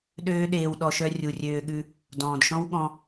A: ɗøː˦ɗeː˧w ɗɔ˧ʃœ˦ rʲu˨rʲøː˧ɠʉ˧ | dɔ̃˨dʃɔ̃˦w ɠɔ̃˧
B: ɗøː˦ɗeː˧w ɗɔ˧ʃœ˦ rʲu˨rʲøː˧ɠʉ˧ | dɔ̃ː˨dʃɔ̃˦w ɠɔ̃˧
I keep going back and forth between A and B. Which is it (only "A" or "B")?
B